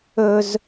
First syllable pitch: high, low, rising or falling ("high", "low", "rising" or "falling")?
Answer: high